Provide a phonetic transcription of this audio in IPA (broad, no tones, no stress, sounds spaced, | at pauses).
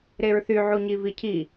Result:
ɾ e ɹ θ y ʕ u ɲ i v i cʰ i